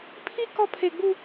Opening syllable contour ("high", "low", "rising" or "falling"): high